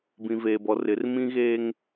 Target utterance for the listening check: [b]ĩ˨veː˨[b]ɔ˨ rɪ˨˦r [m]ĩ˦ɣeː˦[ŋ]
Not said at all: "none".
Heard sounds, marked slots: b, b, m, ŋ

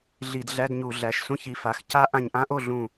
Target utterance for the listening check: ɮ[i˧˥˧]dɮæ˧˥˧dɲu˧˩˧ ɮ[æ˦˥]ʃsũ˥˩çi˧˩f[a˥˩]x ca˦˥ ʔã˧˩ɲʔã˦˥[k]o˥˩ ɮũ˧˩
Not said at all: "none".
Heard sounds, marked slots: i˧˩˧, æ˩˧˩, a˩˧˩, ʔ

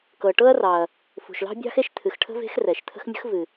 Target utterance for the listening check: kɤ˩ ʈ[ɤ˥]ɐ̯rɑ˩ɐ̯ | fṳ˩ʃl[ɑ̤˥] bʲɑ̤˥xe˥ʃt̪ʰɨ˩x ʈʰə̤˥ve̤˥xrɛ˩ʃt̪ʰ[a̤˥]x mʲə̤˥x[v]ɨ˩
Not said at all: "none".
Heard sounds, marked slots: ɤ˥, ɑ̤˥, ə̤˥, v

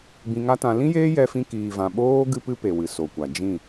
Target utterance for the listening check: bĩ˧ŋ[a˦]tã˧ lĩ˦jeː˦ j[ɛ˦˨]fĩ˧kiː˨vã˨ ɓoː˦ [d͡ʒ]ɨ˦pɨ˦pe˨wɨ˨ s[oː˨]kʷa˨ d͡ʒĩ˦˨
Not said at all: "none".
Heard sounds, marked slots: a˦, ɛ˧, ɡ, o˨

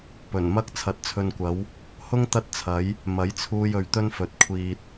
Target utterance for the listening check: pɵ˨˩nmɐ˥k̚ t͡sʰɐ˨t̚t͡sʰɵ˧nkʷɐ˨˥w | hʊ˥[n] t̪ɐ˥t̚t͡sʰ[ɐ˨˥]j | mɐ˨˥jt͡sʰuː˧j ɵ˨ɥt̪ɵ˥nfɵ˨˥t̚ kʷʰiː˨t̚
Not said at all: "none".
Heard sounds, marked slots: ŋ, ɐ˨˥

